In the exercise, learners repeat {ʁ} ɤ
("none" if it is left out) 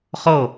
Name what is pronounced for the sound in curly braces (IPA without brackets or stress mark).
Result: χ